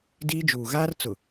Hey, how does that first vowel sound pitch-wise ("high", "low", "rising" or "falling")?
high